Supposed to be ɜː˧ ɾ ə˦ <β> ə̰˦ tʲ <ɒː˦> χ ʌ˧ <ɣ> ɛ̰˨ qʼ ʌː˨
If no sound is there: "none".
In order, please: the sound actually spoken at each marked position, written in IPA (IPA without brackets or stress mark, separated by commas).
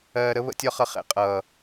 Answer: β, ɒ˦, χ